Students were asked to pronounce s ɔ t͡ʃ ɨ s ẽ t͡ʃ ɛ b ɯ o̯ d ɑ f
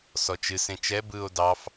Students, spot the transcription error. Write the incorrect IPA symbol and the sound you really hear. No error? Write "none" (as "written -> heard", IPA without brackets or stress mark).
none